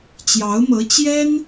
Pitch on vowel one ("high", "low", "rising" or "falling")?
rising